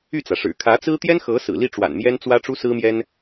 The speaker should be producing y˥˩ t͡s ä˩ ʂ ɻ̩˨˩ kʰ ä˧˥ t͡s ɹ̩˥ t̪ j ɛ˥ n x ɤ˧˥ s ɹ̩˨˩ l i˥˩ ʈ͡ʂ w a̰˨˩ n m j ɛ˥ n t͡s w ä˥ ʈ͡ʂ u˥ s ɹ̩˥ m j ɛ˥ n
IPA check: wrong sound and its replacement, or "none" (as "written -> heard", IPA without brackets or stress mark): none